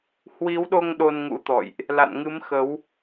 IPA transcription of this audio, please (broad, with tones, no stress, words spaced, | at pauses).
hwi˨˦wɗo˧ŋ ɗo˧nŋṵ˧˥t̪ɔ̰˧˨jʔ | la̰˧˨nŋɨ˨˦mxə˨˦w